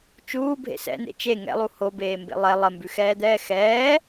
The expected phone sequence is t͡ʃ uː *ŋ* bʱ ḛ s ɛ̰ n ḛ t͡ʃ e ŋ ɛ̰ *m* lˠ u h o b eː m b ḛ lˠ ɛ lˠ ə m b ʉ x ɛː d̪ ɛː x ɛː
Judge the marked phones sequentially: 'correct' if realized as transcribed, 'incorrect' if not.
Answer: incorrect: none, incorrect: none

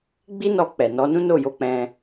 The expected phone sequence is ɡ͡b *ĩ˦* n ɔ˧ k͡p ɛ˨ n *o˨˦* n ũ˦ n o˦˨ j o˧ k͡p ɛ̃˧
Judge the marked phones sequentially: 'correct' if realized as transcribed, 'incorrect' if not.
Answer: incorrect: i˦, incorrect: ɔ˨˦

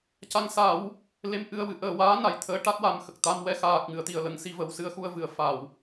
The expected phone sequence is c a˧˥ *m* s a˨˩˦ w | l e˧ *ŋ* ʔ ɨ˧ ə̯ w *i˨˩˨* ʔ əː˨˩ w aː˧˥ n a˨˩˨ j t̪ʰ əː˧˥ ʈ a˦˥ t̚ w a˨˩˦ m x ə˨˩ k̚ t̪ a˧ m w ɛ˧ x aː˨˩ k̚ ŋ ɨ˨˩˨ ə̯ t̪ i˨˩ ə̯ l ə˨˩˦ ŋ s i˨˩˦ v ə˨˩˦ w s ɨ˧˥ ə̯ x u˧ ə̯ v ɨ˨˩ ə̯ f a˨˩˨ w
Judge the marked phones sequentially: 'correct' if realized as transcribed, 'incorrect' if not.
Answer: incorrect: ŋ, incorrect: m, incorrect: ɨ˨˩˨

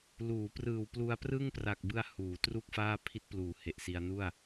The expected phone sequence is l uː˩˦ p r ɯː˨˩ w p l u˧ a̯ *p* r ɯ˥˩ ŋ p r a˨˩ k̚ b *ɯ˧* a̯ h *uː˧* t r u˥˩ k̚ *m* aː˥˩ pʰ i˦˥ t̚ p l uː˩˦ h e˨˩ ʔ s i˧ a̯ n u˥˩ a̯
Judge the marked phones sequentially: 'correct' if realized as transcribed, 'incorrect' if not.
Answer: correct, correct, incorrect: uː˩˦, incorrect: f

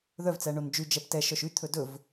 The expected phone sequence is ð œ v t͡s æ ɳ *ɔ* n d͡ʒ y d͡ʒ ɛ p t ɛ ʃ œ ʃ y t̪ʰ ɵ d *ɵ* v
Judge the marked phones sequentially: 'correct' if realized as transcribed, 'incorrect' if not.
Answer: incorrect: o, correct

